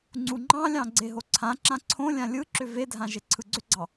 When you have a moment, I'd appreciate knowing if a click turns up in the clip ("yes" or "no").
yes